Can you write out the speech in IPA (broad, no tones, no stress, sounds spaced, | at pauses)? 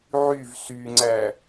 ʕ y v s y ŋ͡ǀ æ